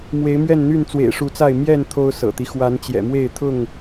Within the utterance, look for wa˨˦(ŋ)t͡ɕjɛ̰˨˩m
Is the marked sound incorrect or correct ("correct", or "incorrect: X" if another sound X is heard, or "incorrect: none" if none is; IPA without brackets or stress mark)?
incorrect: n